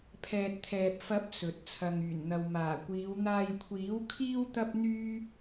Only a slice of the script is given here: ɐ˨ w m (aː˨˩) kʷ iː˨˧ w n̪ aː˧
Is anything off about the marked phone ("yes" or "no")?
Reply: no